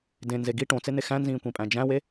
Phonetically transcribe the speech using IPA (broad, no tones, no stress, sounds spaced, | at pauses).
d ẽ n z e ɡ i ʈ õ t͡s e n̪ e x æ̃ n z ĩː kʷ ĩ pʼ æ̃ d͡ʒ æ̃ w e